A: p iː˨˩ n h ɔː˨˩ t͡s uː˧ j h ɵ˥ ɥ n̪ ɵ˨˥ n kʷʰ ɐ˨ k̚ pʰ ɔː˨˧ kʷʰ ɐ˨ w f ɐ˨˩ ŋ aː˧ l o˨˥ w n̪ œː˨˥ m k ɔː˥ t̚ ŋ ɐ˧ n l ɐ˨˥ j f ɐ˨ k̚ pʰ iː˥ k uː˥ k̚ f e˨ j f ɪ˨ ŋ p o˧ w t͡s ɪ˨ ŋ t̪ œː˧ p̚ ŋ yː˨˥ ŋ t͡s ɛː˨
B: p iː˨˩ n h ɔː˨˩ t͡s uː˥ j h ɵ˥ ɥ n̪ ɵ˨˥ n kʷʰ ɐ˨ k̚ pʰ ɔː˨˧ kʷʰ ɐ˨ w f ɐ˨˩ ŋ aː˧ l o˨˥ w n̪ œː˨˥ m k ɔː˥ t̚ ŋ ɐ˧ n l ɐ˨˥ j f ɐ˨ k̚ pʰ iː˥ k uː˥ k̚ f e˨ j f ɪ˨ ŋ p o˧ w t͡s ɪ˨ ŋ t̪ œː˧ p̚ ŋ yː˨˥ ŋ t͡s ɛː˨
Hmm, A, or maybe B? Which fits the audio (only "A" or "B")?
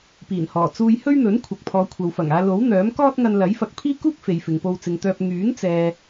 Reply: A